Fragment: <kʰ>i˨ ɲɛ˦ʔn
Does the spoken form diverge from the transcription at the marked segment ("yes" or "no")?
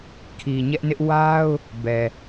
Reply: no